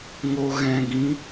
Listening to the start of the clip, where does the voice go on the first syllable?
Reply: low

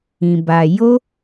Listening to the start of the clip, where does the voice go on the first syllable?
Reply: low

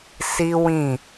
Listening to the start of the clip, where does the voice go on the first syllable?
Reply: high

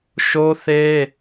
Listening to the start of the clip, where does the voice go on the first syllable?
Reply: high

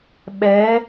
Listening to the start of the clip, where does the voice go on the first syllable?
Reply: rising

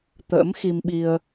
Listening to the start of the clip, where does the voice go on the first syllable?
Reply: rising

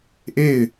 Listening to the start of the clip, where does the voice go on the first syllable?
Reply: falling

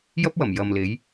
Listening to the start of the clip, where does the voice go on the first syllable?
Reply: high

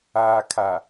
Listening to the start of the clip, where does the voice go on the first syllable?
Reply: low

